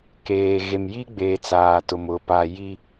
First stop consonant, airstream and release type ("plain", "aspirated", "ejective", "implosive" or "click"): plain